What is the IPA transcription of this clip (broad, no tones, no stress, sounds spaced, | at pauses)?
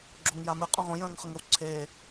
ɡ͡ǁ o ŋ j a m ɨ qʼ õ ʁ õ j ə̃ː ŋ χ ə ŋ ə w ǀʰ e